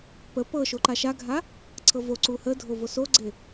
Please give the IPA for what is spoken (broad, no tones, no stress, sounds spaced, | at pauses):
p ə p ɤ ʃ o ǃ a ʃ a ɡʱ a | ǀʰ ɤ v o ǀ u h ə dʱ o v o s o ɡ͡ǀ e